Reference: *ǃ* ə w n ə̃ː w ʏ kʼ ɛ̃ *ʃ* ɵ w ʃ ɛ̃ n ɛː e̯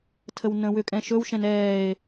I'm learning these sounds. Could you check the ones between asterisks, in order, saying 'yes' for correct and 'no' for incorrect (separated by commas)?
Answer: no, yes